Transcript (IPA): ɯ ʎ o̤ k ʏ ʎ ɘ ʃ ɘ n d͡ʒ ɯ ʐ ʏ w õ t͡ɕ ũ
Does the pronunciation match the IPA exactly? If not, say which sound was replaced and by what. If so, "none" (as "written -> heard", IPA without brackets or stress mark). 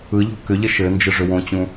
none